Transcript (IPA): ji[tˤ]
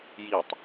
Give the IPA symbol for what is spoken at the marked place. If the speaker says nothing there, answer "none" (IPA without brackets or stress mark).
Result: tˤ